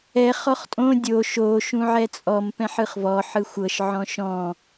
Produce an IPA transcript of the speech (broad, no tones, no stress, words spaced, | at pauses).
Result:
ɛ χɔχtʼõ dʲoʃ o ʃũʕɛt͡sʼɔm pɛ̃ħɯχvɔ ħɯxʷɤʃ ʕɔ̃ʃɔ̃